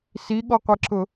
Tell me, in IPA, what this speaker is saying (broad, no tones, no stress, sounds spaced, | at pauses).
s i ɠ ɔ qʷ e ǁ ʊ